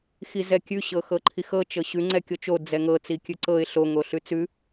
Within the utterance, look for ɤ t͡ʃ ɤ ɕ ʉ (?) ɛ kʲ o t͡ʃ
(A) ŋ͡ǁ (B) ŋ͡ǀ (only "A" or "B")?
B